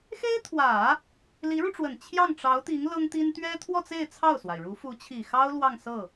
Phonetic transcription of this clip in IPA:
x e˥ ɪ̯ t̪ʰ w ä˨˩˦ | l i˧˥ ɻ u˧ ʈ͡ʂ w ə˨˩ n t͡ɕʰ j ɑ˥˩ ŋ ʈ͡ʂ ɑ˧˥ ʊ̯ t̪ i˧˥ ŋ l ɤ˥ ŋ t̪ i˥ n t̪ ɥ ɛ˥ t̪ʰ w ɔ˥˧ t͡s e˥˧ ɪ̯ t͡sʰ ɑ˥˩ ʊ̯ s w a˩ ɪ̯ ɻ u˧˥ f u˧˥ t͡ɕʰ i˨˩ x ɑ˥ ʊ̯ l w ɑ˥˧ ŋ s ɤ˥˩

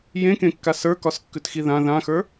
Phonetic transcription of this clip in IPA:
j ẽ k ẽ kː a s ə˞ k ɒ s kː ʉ t x i ð ã ð ã x ə˞

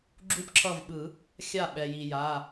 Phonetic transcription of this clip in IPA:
ɡ͡ǁ u˥˨ p ǁʰ ʌ˥˨ v ɓ ɯ˨˩˦ | xʲ a˥˨ ɓ ɛ˩ j i˩ j a˩˧˩

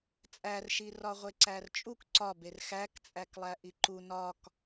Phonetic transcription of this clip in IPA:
t͡sʼ æ r ʃ i r ɒ ʁʷ e ǀ æ r t͡ʃʼ u k ǀ ɒ b e r x æ k t͡sʼ æ k lˠ æ ʔ i ǃ u n ɒ k

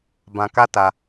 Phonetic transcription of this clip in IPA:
b ã˧ k a˦ t a˧

